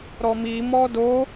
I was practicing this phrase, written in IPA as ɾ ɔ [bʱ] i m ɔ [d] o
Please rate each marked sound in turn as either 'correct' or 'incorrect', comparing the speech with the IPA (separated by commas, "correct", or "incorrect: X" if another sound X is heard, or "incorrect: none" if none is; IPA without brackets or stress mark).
incorrect: m, correct